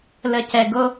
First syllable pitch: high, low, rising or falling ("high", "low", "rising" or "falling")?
low